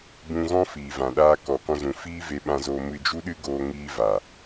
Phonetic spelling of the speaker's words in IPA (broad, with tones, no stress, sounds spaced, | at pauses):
b ũ˧ ɣ ɔ̃˦ f iː˨ v ã˨ ɗ aː˧ k ɔ˨ k ɔ̃˧ z ũ˨ f iː˦ v e˧ ɓ ã˧ z oː˧ m ɨ˧ d͡ʒ u˦ ɗ ɨ˦ ɡ oː˧ ŋ iː˧ v a˨